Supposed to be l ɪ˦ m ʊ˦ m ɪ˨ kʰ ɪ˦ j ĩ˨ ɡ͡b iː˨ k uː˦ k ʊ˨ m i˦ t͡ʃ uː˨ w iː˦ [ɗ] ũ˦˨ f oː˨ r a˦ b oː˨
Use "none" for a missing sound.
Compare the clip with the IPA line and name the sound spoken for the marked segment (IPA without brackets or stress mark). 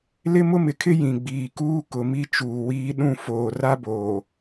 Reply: ɗ